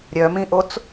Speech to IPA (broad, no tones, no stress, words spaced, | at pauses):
ɾʲœmĩʔot͡s